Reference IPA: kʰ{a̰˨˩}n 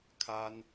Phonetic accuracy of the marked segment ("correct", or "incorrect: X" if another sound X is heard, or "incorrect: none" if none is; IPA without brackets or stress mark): incorrect: a˥